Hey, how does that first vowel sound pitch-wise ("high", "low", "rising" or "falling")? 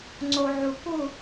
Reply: low